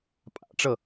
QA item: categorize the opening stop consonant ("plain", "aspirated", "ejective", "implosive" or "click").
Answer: ejective